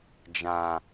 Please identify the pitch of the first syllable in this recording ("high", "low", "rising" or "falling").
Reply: low